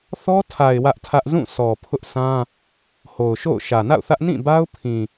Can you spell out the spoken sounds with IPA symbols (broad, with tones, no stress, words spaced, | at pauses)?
θɔ˦tʰa˨ɪ̯ wä˦ʔtʰä˦ʔ zũ˦˨sʰɔ˨ pʰʊ˦ʔsʰã˦ | ho˨ʊ̯ʃo̰˦˨ʊ̯ ʃä˨na̰˦˨ʊ̯θä˦ʔ nĩ˦˨ba˦ʊ̯pʰĩ˨